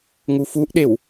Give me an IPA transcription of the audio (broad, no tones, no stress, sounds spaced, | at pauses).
ŋ u f u ʔ ɗ e w